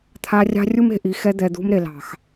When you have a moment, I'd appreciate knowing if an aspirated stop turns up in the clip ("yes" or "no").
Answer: yes